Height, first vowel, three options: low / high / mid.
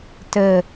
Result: mid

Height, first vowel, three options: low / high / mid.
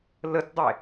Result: mid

